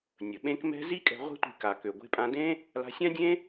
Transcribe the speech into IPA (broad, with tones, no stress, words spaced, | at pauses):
nʲə˩ ɓẽ˥kmɛ̤˥ zi˥kʼɛ̤˧ ʁʷɛ̤˥tʷi̤˧ ka˩kø˩ ɡʷe̤˧pʼã˧dẽ˥ | la̤˧sʲã˥dʲẽ˥